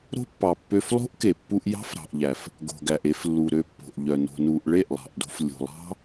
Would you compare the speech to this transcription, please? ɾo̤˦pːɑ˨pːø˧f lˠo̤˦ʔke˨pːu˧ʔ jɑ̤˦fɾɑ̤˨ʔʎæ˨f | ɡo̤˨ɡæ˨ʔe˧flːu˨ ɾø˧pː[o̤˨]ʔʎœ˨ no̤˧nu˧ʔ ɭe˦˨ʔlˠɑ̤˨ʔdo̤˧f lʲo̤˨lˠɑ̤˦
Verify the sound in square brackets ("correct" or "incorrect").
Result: correct